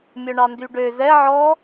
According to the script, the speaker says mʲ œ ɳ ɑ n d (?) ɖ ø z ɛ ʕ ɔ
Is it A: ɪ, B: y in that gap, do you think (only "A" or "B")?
B